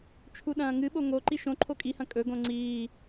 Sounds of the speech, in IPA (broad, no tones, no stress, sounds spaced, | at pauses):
t͡ʃʰ u ɗ ɐ̃ː ŋ ɨ ɓ o ŋ o ǃ i ʃ õ ǃʰ o kʼ i h ɐ̃ kʼ ɵ ɡ õ ŋ͡ǀ iː